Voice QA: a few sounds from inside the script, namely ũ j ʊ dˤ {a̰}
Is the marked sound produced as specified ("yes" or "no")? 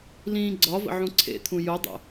no